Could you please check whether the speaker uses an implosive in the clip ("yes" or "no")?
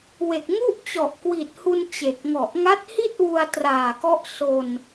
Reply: no